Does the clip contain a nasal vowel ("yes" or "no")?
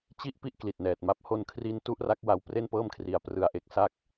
no